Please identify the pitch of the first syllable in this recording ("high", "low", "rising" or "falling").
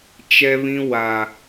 high